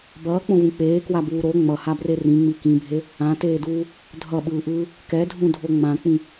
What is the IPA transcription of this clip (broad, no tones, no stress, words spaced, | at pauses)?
bʌːk͡põvũ k͡peːkwabuː ɾo ŋ͡mʌhabre rĩŋ͡mi kĩbʱe | ãteːduː | dʱʌɓɯːʔɯː | kɛdʱũdʱo ŋ͡mãk͡pĩ